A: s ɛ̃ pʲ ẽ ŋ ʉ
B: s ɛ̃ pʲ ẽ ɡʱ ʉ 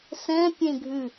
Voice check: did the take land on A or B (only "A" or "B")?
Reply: B